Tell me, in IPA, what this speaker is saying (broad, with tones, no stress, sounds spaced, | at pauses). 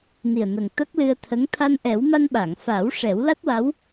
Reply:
n i˨˩ ə̯ n ə˨˩ ŋ t̪ ə˦˥ k̚ l ɨ˧ ə̯ t̪ʰ ə˧˥ ŋ t̪ʰ a˧ n ʔ ɛ˨˩˦ w m a˧ n ɓ a˨˩˨ ŋ f a˨˩˦ w ʂ ɛ˨˩˦ w l a˦˥ t̚ w a˧˥ w